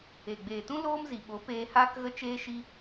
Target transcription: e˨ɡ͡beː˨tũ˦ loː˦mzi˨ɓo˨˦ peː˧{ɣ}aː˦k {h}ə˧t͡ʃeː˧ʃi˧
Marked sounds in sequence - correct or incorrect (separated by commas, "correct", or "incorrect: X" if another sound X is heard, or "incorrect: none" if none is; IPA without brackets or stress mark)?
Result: incorrect: h, incorrect: ɣ